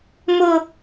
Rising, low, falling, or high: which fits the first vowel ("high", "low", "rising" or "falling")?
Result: low